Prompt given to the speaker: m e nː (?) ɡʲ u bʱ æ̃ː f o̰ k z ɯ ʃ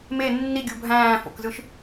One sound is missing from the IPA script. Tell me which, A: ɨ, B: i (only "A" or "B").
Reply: B